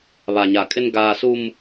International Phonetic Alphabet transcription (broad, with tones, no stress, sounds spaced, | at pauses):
β a˨ ɲ a˨ kʼ ɪ˦ n ɡ aː˦ s u˦ m